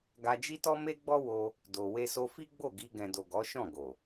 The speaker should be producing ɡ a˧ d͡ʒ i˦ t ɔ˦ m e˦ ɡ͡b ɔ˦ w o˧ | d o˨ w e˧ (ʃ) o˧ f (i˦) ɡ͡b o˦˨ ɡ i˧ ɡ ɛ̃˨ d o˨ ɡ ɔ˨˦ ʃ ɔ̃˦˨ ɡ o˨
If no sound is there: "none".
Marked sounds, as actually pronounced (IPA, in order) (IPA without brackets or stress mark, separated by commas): s, i˦